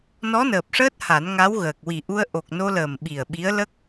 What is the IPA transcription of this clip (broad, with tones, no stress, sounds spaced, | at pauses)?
n ɔ˧˥ n əː˨˩ p̚ ʂ əː˦˥ t̚ h a˨˩˦ n ŋ a˧˥ w ɣ əː˨˩ k̚ w i˨˩ ʔ u˧ ə̯ ʔ o˨˩ k̚ n o˧ l əː˨˩ m ɓ i˨˩ ə̯ ɓ i˧˥ ə̯ l ə˦˥ k̚